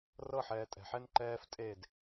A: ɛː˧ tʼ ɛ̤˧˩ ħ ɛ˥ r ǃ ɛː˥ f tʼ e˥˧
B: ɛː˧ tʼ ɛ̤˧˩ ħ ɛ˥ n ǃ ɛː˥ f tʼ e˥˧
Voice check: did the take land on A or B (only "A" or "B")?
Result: B